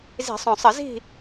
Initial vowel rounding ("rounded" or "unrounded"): unrounded